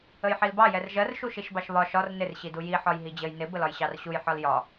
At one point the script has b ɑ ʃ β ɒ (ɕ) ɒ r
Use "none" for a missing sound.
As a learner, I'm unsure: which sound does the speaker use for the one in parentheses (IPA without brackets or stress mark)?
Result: ʃ